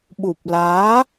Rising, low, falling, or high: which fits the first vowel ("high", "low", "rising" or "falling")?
low